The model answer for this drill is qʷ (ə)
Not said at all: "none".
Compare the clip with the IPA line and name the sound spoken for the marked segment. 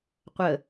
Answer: ə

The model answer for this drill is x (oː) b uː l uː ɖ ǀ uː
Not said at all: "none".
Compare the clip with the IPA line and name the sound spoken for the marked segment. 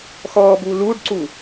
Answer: ɔː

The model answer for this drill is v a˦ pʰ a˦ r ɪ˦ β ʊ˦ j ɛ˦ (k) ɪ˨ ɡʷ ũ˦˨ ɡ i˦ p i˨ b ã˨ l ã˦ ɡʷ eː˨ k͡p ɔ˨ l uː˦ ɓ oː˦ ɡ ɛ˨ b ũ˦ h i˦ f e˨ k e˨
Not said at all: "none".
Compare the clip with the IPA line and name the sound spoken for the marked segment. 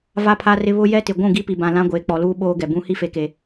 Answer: t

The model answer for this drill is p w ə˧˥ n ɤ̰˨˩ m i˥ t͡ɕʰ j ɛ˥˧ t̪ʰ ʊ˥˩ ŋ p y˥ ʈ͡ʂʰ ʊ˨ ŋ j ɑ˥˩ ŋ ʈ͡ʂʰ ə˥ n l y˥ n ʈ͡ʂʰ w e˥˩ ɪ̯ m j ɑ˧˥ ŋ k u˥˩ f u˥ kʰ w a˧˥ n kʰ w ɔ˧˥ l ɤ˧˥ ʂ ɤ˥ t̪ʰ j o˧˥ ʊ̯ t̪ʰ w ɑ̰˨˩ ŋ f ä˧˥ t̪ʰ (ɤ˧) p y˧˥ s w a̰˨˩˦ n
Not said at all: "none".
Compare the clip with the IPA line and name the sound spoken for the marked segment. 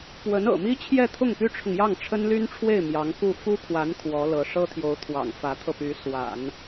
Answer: ɤ˧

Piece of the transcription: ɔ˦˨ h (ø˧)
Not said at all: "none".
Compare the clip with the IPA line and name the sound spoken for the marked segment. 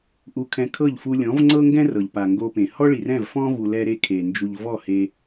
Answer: e˧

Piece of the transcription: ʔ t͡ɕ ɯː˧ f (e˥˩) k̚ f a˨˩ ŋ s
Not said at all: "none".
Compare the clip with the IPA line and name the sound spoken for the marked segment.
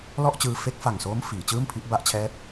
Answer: e˦˥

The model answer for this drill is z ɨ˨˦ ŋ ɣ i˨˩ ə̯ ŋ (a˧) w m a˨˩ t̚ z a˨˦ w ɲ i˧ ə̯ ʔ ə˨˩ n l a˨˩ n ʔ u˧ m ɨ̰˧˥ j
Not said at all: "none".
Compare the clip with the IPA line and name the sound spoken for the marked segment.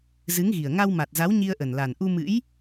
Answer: a˧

